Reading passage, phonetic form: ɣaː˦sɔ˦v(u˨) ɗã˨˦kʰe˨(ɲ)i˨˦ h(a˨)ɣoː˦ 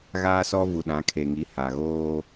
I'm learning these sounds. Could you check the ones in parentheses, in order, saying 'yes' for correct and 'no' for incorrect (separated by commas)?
yes, no, yes